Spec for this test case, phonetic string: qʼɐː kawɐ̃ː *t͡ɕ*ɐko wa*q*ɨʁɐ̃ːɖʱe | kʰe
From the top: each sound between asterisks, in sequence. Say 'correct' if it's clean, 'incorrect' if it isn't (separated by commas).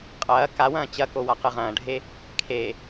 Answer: correct, correct